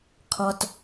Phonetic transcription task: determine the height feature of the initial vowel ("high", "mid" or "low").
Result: mid